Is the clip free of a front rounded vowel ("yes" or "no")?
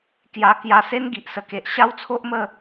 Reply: yes